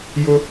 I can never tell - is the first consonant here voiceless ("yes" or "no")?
no